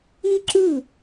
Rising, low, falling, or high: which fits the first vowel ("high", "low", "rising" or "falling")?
high